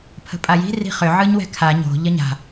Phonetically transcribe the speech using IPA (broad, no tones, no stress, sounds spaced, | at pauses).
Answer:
pʰ ə̤ pʼ a j i̤ r i̤ χ ʏ ʕ ɯ ɲ w ɛ̤ kʰ a ɲ o̤ ʎ ə ɲ a̤